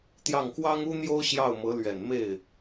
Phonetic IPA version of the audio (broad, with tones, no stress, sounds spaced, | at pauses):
t̪ j ɑ˥˩ ŋ k w ɑ˥ ŋ u˥ n̪ j o˥ ʊ̯ ɕ j ɑ˥˩ ʊ̯ m ɤ˧˥ l ɥ ɛ˨˩ n m e˥˩ ɪ̯